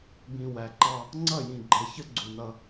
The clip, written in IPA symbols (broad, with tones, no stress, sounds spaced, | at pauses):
b ĩ˨ w æ˨ ǃ ɑ˦ | ŋ͡ǀ ʌ˦˨ j ĩ˨ ɡ͡ǃ ɛ˨ ç ə˦ ɡ͡ǀ u˨ n ʌ˦